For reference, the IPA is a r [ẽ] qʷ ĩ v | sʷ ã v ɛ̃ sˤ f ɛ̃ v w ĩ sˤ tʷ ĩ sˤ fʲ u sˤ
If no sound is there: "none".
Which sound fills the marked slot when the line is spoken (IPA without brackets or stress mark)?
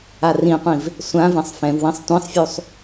ĩ